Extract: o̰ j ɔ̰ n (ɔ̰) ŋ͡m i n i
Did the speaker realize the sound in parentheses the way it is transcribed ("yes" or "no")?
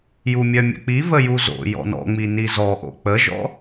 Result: yes